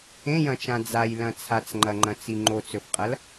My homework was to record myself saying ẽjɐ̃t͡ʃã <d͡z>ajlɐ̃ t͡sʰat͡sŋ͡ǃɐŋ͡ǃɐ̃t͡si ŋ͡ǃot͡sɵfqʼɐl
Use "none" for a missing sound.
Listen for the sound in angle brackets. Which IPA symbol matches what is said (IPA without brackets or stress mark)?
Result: d͡z